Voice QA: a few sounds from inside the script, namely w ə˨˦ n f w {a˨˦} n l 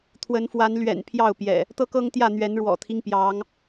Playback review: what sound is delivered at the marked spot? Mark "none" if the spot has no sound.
a˨˦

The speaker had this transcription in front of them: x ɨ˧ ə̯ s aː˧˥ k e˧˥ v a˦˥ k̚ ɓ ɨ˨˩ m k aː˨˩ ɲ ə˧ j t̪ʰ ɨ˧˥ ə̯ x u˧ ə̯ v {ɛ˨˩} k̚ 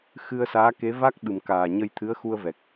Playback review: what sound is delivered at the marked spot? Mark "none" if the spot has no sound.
ɛ˨˩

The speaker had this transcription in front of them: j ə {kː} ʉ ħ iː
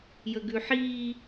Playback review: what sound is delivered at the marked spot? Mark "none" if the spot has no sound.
ɡ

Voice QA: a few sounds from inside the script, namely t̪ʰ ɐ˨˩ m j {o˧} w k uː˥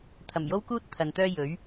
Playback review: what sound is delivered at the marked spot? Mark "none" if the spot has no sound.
o˥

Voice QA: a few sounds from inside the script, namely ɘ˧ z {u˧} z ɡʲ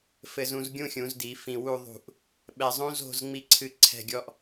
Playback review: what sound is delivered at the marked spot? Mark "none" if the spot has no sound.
ũ˧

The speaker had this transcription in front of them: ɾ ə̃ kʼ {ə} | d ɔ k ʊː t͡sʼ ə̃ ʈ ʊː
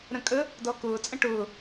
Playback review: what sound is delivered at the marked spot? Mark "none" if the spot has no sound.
ə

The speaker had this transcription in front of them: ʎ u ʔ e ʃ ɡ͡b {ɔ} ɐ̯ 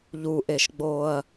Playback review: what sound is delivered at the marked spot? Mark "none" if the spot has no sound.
o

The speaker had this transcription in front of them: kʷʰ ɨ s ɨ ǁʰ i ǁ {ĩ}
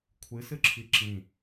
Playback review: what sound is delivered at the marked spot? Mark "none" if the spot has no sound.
ĩ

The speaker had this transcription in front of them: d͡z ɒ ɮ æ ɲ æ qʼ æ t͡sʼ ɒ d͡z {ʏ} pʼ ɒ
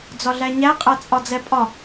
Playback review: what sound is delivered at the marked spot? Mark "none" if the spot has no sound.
ɛ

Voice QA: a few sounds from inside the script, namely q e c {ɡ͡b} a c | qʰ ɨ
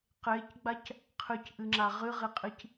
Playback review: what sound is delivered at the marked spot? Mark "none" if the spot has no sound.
ɡ͡b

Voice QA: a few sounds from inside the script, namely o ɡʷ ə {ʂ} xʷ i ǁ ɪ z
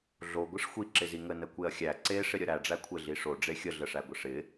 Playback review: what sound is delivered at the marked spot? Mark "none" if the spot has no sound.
ʂ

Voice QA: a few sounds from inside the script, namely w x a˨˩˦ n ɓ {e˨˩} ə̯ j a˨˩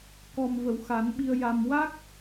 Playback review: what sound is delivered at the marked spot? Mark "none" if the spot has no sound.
i˨˩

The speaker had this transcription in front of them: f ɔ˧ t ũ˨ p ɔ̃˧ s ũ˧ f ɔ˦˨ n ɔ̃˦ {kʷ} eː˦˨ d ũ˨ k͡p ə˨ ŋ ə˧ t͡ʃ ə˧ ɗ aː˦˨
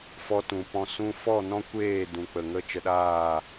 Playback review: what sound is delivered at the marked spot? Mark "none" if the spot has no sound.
kʷ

